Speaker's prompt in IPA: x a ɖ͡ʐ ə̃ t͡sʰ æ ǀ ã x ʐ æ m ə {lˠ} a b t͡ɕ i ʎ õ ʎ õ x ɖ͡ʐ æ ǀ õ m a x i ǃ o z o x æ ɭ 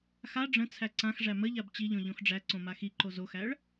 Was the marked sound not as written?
yes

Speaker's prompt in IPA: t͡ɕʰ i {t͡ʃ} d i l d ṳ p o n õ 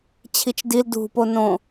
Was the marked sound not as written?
no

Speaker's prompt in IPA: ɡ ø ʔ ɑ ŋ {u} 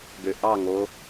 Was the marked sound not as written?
yes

